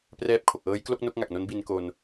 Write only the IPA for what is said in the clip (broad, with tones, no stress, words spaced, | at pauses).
prɛː˦˥p̚kʰo˨˩k̚ʔɤː˦˥jklo˥˩k̚ no˥˩k̚ŋa˨˩k̚no˦˥n bi˧n ko˧n